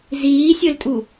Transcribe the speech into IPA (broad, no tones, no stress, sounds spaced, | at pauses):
z iː sʲ ɵ l tʼ u